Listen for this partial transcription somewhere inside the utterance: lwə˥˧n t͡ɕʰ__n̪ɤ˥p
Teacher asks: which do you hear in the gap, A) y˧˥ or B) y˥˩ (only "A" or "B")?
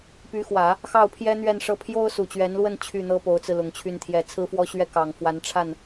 B